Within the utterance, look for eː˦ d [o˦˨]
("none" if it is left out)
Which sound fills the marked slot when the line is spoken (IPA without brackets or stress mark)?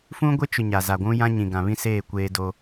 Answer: o˦